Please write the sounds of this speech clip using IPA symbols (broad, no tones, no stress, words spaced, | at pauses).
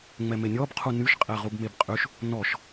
ŋ͡mɛmenʲɔb qʰunyʃ qʼɛʁubmebqʼyʃ | nɔʃ